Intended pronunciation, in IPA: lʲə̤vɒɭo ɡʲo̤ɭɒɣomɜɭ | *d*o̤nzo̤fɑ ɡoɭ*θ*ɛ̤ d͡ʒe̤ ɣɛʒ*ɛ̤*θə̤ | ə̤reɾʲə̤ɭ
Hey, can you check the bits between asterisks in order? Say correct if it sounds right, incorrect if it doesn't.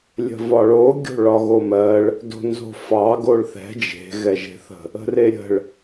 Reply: correct, correct, incorrect: e̤

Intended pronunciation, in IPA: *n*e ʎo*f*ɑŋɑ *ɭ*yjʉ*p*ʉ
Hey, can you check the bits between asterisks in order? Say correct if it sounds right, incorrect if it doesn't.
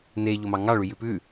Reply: correct, incorrect: m, correct, correct

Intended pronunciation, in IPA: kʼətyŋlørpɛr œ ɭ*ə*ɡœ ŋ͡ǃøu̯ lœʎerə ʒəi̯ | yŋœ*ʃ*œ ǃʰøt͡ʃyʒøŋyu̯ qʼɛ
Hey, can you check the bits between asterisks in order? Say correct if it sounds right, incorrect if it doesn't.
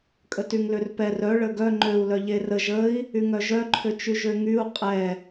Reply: correct, incorrect: ʒ

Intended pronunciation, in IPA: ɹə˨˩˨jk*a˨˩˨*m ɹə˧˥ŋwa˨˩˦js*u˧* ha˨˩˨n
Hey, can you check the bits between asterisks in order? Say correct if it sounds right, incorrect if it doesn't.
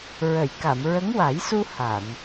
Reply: correct, correct

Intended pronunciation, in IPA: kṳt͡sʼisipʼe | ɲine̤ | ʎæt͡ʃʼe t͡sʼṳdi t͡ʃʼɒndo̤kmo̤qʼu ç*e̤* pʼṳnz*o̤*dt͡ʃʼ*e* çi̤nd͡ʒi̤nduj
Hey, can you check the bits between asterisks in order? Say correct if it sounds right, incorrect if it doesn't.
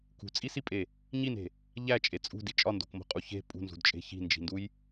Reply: correct, incorrect: ṳ, incorrect: e̤

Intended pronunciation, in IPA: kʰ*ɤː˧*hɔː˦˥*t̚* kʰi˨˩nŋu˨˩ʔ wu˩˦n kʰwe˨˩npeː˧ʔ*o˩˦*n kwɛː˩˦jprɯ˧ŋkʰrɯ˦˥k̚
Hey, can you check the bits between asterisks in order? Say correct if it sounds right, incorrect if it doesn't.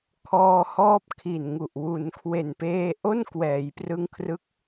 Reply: incorrect: ɔː˧, incorrect: p̚, incorrect: o˥˩

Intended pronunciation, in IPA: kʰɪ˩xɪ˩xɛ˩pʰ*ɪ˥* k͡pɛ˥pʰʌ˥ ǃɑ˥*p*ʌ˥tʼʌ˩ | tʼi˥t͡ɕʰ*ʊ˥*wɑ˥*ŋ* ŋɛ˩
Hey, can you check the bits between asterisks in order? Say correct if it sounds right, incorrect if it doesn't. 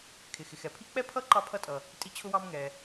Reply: incorrect: i˥, incorrect: pʰ, correct, incorrect: m

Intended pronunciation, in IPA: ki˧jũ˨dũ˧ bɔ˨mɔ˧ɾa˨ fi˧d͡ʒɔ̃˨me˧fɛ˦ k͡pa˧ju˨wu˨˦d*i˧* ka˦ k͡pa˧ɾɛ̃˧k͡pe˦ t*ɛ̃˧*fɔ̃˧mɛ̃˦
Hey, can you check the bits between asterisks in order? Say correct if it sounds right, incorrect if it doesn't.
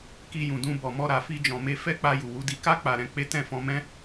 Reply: correct, incorrect: ɛ̃˦˨

